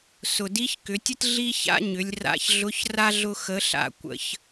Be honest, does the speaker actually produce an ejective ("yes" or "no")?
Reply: no